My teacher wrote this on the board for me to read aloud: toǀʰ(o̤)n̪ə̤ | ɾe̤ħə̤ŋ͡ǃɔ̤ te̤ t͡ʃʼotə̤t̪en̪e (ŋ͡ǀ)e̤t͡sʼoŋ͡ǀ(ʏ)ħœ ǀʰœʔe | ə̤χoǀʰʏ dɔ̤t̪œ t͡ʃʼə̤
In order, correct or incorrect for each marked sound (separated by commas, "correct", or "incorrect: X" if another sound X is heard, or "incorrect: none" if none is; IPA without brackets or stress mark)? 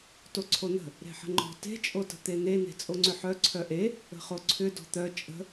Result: incorrect: o, incorrect: n̪, correct